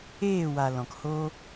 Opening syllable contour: falling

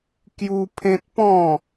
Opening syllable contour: high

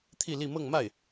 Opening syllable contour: falling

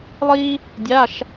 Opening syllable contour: high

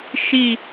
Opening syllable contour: falling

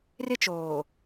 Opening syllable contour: high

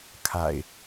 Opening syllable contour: low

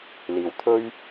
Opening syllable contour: low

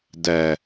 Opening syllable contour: low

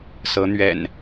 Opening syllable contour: rising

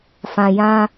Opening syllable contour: low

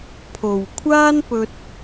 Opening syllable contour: low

